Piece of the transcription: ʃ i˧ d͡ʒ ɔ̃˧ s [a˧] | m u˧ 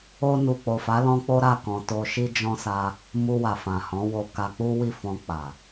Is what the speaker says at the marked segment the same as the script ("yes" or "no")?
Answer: yes